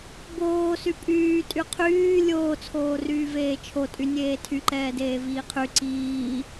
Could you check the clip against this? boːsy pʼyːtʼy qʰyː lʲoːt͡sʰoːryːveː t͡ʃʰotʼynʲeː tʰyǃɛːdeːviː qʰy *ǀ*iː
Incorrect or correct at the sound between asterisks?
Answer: correct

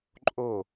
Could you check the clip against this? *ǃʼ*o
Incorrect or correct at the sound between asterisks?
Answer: correct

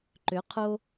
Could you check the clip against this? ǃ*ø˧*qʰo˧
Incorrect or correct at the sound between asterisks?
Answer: incorrect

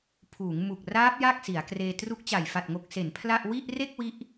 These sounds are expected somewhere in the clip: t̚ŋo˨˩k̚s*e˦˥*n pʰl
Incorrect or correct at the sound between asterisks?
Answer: incorrect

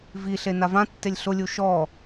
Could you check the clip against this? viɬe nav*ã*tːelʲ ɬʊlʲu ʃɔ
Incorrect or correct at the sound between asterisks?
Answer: correct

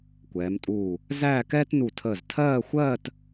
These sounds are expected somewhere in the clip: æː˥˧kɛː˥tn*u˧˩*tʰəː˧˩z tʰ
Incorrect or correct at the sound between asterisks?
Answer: correct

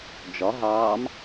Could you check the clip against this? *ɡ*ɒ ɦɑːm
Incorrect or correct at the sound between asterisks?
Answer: incorrect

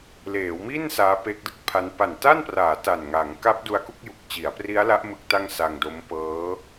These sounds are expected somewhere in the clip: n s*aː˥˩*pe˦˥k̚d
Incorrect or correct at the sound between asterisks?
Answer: incorrect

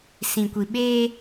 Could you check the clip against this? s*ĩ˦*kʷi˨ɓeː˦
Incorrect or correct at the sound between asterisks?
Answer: incorrect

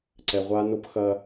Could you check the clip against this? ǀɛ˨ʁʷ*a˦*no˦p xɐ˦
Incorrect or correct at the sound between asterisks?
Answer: correct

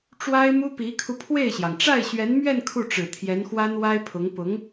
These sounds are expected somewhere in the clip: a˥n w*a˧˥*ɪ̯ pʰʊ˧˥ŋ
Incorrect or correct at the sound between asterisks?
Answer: incorrect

